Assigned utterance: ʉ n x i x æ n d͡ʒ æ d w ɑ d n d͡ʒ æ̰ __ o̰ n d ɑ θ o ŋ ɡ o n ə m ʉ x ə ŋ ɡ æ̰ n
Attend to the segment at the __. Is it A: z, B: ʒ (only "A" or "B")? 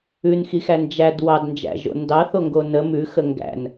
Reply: B